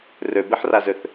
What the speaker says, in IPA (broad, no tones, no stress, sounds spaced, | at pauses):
r ø b e ħ r a z ø θ